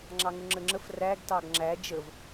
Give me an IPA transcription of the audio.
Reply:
ŋ͡ǁɑŋʊŋ͡ǁəŋ͡ǁəf ræɡ tɑɡŋ͡ǁæ d͡ʒəv

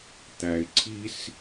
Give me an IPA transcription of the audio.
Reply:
t̪æ˩ɪ̯ǀʰi˧s

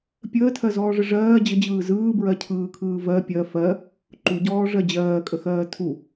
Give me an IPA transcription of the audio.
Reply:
pʲəːtʰɜzɔːʐə ʐɜː d͡ʑəd͡ʑɯː zɯːbɹɜcʰɯːkʰɯː vɜ pʲɜ fɜ | ǃuɟɔːʐɜ d͡ʑɜːkʼəxɜː tʰu

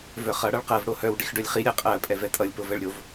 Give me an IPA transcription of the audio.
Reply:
vœχʌ ɽʌɭqɜv ɽohœw ɖixɖœlʲχi ɾʲɛqʼɜ pʼɛvɛtʼʌlʲ povɛɭɾʲov

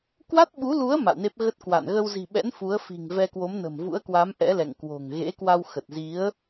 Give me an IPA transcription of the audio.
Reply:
kwa˦˥t̚ɓu˨˦lu˨˦ə̯ ma̰˧˨wne˦˥p̚ ɣə˦˥t̚kwa̰˧˨n ɣə˧wzi̤˨˩ɓɛ̰˧˥n fu˨˦ə̯fi̤˨˩ŋvɛ˧ kwo˨˦mnə̤˨˩mvṵ˧˥ə̯kwaː˨˦m ʔɛ̰˧˥lɛ̰˧˨ŋ kwo̤˨˩ŋ ɣḛ˧˥kwa˧w xə˨˩t̚ zi˨˦ə̯

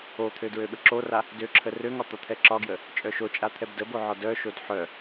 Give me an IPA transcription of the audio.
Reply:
ot̪ʰø dɹøɓəǁora | døǁʰə røŋɒ t̪ɒt̪ʰɛǁɒɡjə | t͡ʃʼœʃot͡ʃʼa t̪ʰɛbdəbo ʕɒdœʃod ħœ

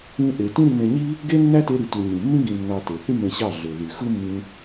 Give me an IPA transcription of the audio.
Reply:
ĩ˦ʔe˧ tĩ˦ɾi˧nẽ˧ɲi˦ | ɡe˦nːæ˦te˧ɾi˨ tu˨ ɲĩ˨mːĩ˦ ɡĩ˧nːɑ˧ te˨θy˦mẽ˧ ɕɑ˦˨ɮø˨ ðy˨ xɯ˦mːĩ˧

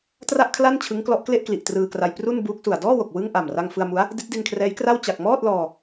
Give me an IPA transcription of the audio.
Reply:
tra˥˩ʔkʰla˥˩n t͡ɕʰɯ˦˥ŋklɔ˦˥ʔkle˥˩ʔkli˨˩ʔ trɯː˧kra˧j pru˥˩nbuː˦˥k̚su˨˩a̯ dɔː˥˩wo˨˩k̚ wɯ˥˩ŋ ʔa˨˩mra˧ŋ fɯ˧a̯mu˦˥a̯ | di˦˥t̚di˧nkʰrɛː˦˥jkra˥˩w t͡ɕa˨˩k̚ mɔː˥˩t̚lɔː˧

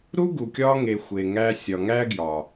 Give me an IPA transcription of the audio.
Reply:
ɾu˦ɡu˨kʲɒː˧ŋe˨ xʷe˨ŋæ˧sʲɒ˨ŋæ˦ ɡjɒ˨

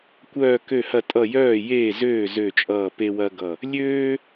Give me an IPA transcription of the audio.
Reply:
kʷœː˧˩kø˧˩hɐ˧˩tʼʌ˧˩ jœː˧˩jeː˧˩zøː˧˩ zø˧˩t͡ʃʼʌː˧˩ pe˦wɐ˦ɡʌ˧˩ | lʲøː˦

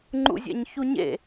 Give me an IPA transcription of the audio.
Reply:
ŋ͡ǃṵzʲɛ̰ɲçuɲḛ

